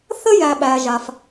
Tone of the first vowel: high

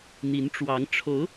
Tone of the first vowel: rising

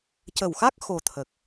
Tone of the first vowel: low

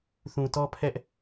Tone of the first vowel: low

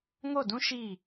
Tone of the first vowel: falling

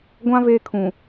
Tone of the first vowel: high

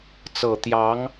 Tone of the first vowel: low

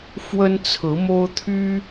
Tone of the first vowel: high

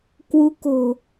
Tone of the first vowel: rising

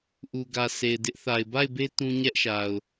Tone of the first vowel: low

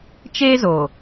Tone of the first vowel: high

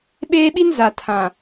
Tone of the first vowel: high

